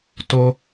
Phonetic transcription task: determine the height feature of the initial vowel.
mid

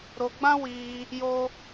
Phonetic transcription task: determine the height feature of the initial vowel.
mid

